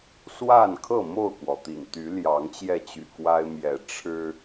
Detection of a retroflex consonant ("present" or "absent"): present